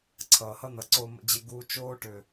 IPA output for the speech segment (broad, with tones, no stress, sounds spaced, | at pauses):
ǀʰ ʌː˨ h ʌ˦ n̪ ʌ˨ ǀ o˧ m ə̰˧ d͡ʑ ɪ˧ ɡ u˧ t͡ʃ oː˧ ʈ ʏ˨